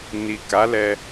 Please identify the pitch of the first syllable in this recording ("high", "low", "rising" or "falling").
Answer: low